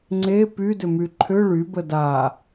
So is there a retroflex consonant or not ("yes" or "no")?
yes